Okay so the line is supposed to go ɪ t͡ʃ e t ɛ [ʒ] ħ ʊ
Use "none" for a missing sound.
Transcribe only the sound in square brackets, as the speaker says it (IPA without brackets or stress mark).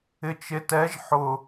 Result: ʒ